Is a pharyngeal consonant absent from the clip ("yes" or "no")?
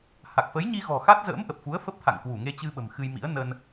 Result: yes